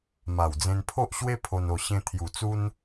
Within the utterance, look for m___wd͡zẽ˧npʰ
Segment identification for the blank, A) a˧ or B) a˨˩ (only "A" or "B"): B